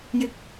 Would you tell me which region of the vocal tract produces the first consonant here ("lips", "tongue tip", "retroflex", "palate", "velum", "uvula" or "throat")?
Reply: palate